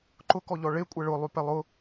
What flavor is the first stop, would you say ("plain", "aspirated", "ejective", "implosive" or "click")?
click